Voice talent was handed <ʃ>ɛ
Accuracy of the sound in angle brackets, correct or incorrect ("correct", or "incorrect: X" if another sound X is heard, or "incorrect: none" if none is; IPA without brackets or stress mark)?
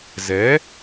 incorrect: z